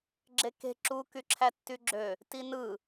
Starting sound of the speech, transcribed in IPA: ɡ͡ǁ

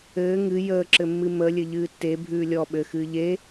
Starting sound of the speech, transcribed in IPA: ɘː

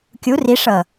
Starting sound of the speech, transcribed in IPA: kʲ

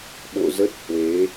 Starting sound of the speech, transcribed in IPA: ɓ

